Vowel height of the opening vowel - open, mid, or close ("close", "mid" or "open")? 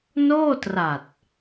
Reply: mid